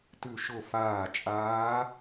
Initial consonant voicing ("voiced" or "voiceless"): voiceless